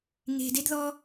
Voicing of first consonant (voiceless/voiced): voiced